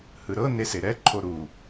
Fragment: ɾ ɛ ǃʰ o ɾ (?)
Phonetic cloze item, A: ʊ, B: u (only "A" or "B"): B